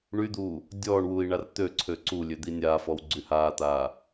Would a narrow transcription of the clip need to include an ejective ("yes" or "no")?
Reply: no